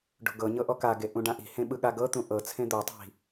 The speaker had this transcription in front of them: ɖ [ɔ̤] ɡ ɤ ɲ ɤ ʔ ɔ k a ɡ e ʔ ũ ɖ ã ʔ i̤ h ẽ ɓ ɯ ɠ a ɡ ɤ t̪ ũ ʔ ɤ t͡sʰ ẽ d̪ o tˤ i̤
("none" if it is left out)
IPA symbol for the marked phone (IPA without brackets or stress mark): o̤